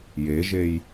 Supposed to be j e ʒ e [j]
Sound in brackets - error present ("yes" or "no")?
no